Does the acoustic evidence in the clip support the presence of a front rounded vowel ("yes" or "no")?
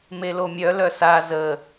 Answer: yes